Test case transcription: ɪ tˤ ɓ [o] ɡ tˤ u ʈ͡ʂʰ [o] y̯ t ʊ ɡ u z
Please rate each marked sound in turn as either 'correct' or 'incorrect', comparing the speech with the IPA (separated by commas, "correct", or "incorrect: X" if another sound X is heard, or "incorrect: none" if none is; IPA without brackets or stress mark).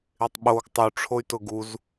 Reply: correct, correct